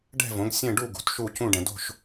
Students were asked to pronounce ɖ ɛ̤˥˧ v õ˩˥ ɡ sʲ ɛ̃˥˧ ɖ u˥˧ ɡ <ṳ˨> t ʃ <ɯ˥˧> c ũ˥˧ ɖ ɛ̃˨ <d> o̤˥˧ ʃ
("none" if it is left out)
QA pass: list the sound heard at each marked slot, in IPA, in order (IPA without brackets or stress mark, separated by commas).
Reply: ṳ˨, u˥˧, d